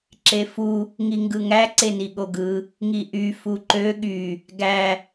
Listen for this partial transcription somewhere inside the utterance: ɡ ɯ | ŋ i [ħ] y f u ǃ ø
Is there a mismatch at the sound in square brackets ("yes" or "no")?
yes